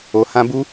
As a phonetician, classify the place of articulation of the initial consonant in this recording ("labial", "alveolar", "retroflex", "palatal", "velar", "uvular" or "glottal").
glottal